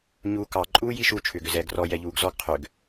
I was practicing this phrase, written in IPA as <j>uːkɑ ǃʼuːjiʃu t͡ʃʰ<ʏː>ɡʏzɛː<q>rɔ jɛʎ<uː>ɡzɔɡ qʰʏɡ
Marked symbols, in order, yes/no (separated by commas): no, yes, no, yes